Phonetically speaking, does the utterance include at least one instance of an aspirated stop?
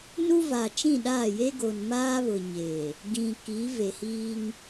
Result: no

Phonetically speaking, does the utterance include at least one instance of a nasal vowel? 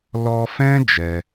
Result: yes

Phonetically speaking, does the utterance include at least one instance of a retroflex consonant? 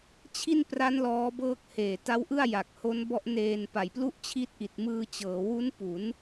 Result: no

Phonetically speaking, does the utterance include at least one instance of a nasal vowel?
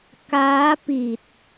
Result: no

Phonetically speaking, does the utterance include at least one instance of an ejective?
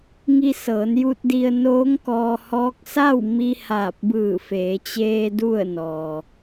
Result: no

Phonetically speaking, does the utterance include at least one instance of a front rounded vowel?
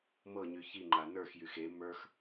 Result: yes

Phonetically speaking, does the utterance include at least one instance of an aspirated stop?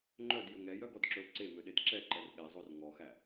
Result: no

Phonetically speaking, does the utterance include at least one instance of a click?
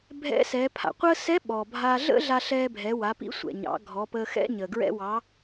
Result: no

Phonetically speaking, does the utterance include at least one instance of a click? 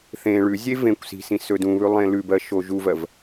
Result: no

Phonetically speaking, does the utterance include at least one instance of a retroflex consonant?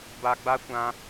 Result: no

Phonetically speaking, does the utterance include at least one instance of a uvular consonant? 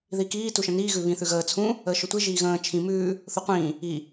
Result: yes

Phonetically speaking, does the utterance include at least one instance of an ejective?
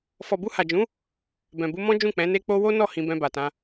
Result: no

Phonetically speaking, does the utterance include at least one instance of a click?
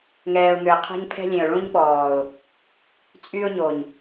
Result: no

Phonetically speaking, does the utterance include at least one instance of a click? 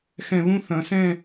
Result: no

